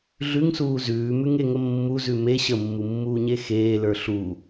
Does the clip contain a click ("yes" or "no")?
no